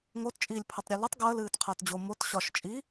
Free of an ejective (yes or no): no